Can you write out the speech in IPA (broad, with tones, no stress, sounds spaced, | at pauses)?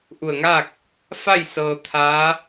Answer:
ʔ u˧˩ ə̯ ŋ aː˥˨ k̚ | f a˥˨ j s ɤː˧ t̪ʰ aː˧˥